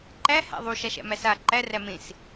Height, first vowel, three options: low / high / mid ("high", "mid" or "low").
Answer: low